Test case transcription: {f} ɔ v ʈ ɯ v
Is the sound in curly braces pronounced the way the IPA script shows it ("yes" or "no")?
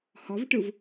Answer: no